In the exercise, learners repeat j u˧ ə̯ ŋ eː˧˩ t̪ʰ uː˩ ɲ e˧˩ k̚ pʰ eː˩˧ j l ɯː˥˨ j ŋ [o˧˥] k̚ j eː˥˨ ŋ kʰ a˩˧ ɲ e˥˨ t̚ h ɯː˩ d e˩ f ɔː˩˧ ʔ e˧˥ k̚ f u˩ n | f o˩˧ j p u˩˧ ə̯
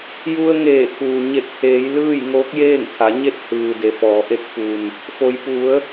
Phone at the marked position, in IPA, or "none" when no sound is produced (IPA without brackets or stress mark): oː˧˥